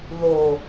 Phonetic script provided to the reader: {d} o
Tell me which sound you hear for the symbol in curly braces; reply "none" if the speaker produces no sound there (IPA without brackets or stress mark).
ð